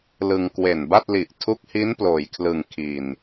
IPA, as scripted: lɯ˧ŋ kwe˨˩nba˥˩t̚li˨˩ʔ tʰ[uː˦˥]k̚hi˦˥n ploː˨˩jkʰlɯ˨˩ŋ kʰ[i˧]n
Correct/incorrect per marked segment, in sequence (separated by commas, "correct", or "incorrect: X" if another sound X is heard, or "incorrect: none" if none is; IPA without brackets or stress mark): incorrect: u˦˥, incorrect: i˨˩